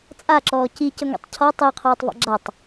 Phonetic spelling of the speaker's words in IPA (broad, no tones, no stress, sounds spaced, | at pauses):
t͡sʼ a ǁ ɔː c i c ə ŋʷ ɛ̰ tˤ cʰ ɔ tˤ i ɐ̯ qʰ ɔː tˤ v a̰ ɡ͡ǁ a tˤ